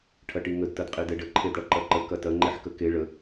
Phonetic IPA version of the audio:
ʈʰ ɐ ʈ i ŋ ə d t ɐ d qʼ i d ɛ ɖ ə ǃʰ e d ɽ ɐ ǃ ɐ ǃ ə k ɐ t ɐ ŋ͡ǃ e ħ k ə k e ɭ ə

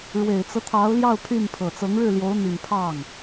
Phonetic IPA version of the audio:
ɻ w e˨˩ ɪ̯ t͡s ɤ˦ t̪ʰ ɑ˧˥ ʊ̯ l j ɑ˥˧ ʊ̯ pʰ y˥˩ n pʰ ɤ˨˩ t͡s ɤ˧˥ ŋ ɻ ɻ̩˥˩ l j o˧˥ ʊ̯ n̪ i˨˩ n pʰ ɑ˥˩ ŋ

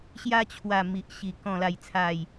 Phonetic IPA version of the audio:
ɕ j a˧ t͡ɕʰ w a˨˩ m i˨ ʔ ɕ i˨˩ k ɔ̃˨˩ l a˨˩ j t͡sʰ a˨˩ j

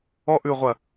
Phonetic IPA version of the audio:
ɔ˧ ʔ ʉ˨ ʁʷ ɐ˨

